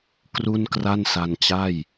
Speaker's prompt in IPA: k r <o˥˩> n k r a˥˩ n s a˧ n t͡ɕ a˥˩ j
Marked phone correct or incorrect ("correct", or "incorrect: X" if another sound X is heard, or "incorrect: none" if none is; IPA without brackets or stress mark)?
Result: incorrect: u˥˩